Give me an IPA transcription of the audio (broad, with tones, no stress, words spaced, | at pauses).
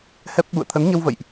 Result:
hɛ˦˥p̚ ɓṵ˧˨ə̯t̪ʰə˨˦nɲə˧wvə̰˧˨jʔ